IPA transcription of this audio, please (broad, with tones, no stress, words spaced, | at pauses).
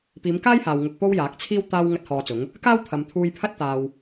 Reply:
piː˨˧mkaː˥jhaː˨w ŋʊ˧k̚po˥wjaː˨˥k̚t͡sʰiː˥w t̪aː˥w ŋɐ˥t̚hɔː˧t͡sʊ˨˥ŋ | kaː˥wt̪ʰɐ˨mt̪ʰuː˧jpʰɐ˥t̚ t̪aː˧w